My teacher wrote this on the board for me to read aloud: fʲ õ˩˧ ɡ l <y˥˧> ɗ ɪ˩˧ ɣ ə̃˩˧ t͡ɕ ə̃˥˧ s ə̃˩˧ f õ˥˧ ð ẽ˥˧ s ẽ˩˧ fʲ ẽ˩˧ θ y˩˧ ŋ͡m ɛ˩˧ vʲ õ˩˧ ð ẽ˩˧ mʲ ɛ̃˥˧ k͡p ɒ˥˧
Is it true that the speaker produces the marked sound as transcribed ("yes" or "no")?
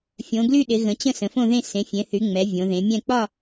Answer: yes